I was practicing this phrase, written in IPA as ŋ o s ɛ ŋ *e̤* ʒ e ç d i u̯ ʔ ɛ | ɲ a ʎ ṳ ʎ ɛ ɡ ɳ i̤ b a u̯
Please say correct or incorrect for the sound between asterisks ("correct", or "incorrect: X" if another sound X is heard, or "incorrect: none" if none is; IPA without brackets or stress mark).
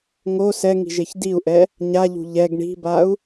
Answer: incorrect: i̤